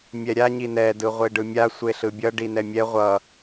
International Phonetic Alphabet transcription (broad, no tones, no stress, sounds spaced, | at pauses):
mʲ ɛ ɾʲ a ɲ i n ɛ d ɯ ʁʷ e ɖ ɯ mʲ a sʷ e ɬ ɯ bʲ ʌ ɖ i n ɛ mʲ ɛ ʁʷ ʌ